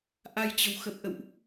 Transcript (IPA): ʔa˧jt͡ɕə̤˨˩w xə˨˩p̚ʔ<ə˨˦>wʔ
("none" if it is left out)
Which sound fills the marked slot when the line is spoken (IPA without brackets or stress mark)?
ə̰˧˨